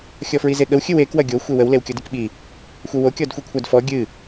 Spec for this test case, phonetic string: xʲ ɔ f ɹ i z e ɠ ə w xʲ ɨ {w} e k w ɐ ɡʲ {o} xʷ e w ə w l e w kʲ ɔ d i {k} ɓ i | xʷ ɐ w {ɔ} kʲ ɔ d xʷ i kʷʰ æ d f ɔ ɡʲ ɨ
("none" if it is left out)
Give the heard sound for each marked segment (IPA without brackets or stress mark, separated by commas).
w, o, k, o